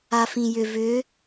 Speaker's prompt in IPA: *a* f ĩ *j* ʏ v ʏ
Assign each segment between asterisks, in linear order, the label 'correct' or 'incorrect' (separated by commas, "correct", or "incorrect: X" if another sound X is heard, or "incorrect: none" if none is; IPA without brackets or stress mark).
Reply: correct, correct